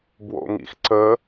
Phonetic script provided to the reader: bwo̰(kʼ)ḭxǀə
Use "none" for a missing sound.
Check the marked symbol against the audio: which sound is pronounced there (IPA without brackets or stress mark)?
ŋ